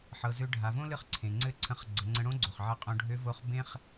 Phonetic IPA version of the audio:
ħ ɤ˩˧ z ø˧ ɖʱ a˩˧ v õ˥ l ɨ˧˥ χ ǀʰ ẽ˩ ŋ͡ǀ ɘ˥ ǀʰ ə̃˧˥ χ ɡ͡ǀ ə˩˧ ŋ͡ǀ ə̃˧ ɽ õ˥ ɡ͡ǀ o˩ χ ʕ ɘ˧ qʼ õ˧ ɖʱ ø˧˥ v o˧˥ χ b ẽ˥ χ

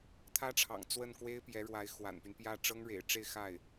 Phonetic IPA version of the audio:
t̪ʰ ä˥ ʈ͡ʂʰ ɑ̰˨˩ ŋ t͡s w ə˥˩ n k w e˥ ɪ̯ p j ɛ˧˥ ɻ w a˧˥ ɪ̯ x w a̰˨˩ n p y˦ n p j ä˥˩ ʈ͡ʂ ɤ˥ ŋ ɻ ḛ˨˩ ɪ̯ ʈ͡ʂ e˥˧ ɪ̯ x a˥˩ ɪ̯

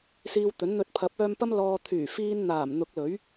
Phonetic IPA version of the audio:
s iː˧ w t̪ ɵ˨˥ n n̪ ɵ˧ t̚ pʰ ɐ˨˥ p̚ œː˧ m p ɐ˧ m l ɔː˨ t̪ʰ yː˨˩ f iː˧ n n̪ aː˨˩ m n̪ ʊ˨˥ k̚ l ɵ˨˥ ɥ

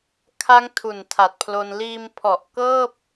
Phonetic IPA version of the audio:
kʰ a˦˥ ŋ tʰ u˨˩ n tʰ a˨˩ t̚ pʰ l o˧ n l iː˧ m pʰ ɔ˨˩ ʔ k ɤː˥˩ p̚

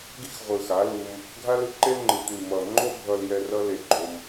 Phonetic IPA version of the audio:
ɡ i˦ x ʁʷ ɯ˨ x a˨˦ l u˧ m | ɡʱ a˦ l ɯ˧ ǃ e˦ l ŋ͡ǃ ɯ˨ tʷ i˨ m ʌ˨ ŋ͡ǃ o˦ bʱ ʌ˧ l j ɛ˧ r ʌ˦ l e˧ ɡ͡ǃ o˧ m

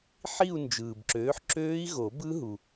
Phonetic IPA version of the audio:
ħ i˥˧ u̯ n d͡ʒ ɯː˨ b ǁ øː˨˥ ħ ǁ øː˦˥ i̯ ɣ o˨˩˦ b ɯ˦˥ ɦ u˨

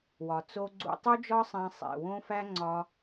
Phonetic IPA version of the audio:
w ɒ˨ t͡s o˧ ɡ͡ǀ ṵ˧ tˤ u˦ d͡ʒ ɒ˦ sˤ æ̃˧ sˤ ḛ˨ w õ˦ f æ˦ ŋ͡ǀ ɒ˧

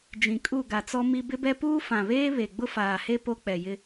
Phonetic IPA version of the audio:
d͡ʒ ĩ˨ kʼ u˦˨ ɡ a˨ t͡s ɔ˦ m i˦ b ɪ˦ b ɛ˦ p uː˦ f ã˨ β eː˦ β e˨ ɡ͡b ʊ˦ f aː˨ h e˦ p o˦ k͡p ɛ˨ j ɪ˦

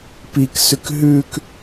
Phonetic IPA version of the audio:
p i k s ʉ k ɦ ʉ k

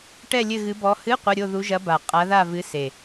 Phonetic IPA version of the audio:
ʈ ɛ˥˧ lʲ ɘ˥˧ ɣ ɨ˧˥ b ɔ˧˥ h ɨ˧˥˧ qʷ ɐ˧˥˧ ɾʲ o˥˧ ð u˧˥ ʒ ɐ˧˥ b a˨˩ qʼ a˧˥ ð a˥˧ v ɨ˧˥ s e˨˩

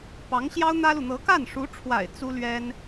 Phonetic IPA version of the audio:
p ɑ˧˥ ŋ ɕ j ɑ˥ ʊ̯ n̪ ä˥ l u˨ n̪ ɤ˧˥ k a˥˩ n ʂ u˧˥ ʈ͡ʂʰ w a̰˨˩ ɪ̯ t͡s u˥ l ɥ ɛ˥ n

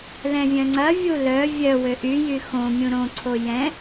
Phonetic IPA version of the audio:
l ɛ̃ vʲ œ̃ ŋ͡ǀ ɐ vʲ u l œ vʲ œ w ø ʔ y j y x õ mʲ ũ ɾ õ ǀʰ o j ɛ̃

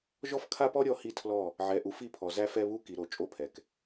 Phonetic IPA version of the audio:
ʒ ɔ˦ f kʰ a˦ p ɔ˦ ɾʲ ɔ˦ h i˦ tʰ l ɔ˦˨ | ʕ ɛ˨ ʔ u˨ f i˦˨ pʰ ɔ˨ z æ˦ f ɛ˦ β u˦ k i˨ ɾ o˨ t͡ʃʼ o˦ pʰ ɛ˨ k

